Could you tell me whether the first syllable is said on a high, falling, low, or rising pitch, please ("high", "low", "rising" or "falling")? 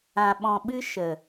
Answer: low